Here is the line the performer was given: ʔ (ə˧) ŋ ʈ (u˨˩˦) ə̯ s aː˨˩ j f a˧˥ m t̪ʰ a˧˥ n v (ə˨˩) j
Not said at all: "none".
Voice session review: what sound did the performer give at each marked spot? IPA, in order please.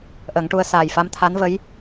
ə˨˩˦, u˧, ə˧˥

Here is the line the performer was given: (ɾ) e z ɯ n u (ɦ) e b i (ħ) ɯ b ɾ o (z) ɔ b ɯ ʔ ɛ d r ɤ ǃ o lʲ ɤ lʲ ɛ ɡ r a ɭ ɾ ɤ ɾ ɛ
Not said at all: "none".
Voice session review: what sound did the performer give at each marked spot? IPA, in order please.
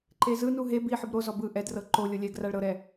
ǃ, ɦ, ħ, z

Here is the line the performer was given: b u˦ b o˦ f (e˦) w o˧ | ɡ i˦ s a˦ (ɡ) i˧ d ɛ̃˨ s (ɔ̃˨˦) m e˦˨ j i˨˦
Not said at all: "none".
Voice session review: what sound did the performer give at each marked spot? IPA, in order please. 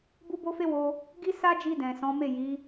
e˦, d͡ʒ, ɔ̃˨˦

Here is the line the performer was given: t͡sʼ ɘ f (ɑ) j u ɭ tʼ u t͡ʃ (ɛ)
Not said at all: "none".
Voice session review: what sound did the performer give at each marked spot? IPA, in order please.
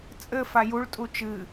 a, ɨ

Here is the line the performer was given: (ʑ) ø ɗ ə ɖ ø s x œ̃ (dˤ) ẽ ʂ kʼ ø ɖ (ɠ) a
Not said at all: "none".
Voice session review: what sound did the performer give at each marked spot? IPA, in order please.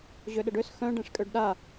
ʑ, ɖ, ɗ

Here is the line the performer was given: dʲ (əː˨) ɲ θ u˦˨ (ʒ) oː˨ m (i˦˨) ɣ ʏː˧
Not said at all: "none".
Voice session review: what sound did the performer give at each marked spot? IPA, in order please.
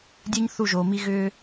əː˦, ʒ, i˦

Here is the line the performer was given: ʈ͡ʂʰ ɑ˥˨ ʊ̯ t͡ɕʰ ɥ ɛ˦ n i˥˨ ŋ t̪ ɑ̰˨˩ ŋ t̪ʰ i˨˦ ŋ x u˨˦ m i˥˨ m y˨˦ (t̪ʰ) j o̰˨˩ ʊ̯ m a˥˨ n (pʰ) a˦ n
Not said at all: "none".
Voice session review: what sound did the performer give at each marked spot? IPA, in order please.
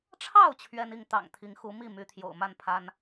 t̪ʰ, pʰ

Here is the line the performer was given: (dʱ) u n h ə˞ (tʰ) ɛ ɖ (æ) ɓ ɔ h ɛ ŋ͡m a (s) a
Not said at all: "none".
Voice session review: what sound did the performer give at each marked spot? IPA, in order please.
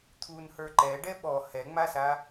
t̪ʰ, ǃ, ɛ, s

